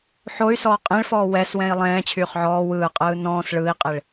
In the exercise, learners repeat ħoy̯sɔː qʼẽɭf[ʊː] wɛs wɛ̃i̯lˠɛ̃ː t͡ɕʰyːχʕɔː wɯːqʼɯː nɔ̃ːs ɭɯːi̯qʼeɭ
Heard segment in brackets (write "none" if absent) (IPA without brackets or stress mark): ɔː